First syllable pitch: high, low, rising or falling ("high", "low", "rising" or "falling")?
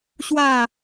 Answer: falling